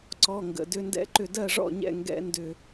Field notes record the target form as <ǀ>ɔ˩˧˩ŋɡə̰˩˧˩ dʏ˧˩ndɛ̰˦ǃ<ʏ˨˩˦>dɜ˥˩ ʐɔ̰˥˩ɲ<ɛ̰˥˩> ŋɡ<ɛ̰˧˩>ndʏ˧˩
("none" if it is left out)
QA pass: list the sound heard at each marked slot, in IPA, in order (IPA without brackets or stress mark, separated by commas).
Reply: ǀ, ʏ˧˩, ɛ̰˥˩, ɛ̰˦